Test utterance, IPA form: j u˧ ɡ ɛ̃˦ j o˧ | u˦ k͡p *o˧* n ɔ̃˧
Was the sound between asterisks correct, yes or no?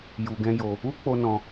yes